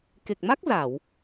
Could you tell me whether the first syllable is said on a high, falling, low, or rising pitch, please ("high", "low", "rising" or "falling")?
low